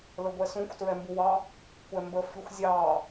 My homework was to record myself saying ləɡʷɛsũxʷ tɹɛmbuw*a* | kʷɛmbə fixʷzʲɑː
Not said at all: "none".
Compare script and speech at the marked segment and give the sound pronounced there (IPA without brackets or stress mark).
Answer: ɑ